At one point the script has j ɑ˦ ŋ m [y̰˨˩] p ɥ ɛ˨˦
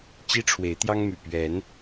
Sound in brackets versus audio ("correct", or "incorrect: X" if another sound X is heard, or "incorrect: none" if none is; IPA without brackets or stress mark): correct